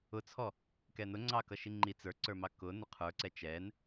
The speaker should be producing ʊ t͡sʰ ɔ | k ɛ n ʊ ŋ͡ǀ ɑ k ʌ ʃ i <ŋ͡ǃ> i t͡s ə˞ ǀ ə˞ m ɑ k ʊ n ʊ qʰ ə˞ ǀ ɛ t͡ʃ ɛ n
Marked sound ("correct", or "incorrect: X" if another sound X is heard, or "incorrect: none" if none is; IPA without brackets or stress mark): correct